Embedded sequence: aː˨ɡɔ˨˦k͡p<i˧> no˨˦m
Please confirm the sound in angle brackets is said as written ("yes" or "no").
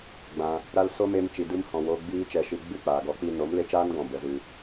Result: yes